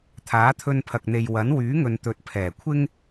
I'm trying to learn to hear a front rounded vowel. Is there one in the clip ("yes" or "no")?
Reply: yes